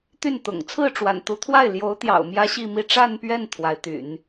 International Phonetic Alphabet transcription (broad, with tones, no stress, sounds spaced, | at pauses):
t̪ y˥˩ n t̪ ʊ̰˨˩ ŋ t͡sʰ ɹ̩˥˩ ʈ͡ʂ w a̰˨˩ n t̪ u˧˥ t̪ʰ w a˥˩ ɪ̯ l j o˧˥ ʊ̯ t̪ j ɑ̰˨˩ ʊ̯ m j ä˥ ɕ i˥˧ m i˥˧ ʈ͡ʂ a˥˧ n p ɥ ɛ˥˩ n t̪ʰ w a˧˥ ɪ̯ t̪ y̰˨˩˦ n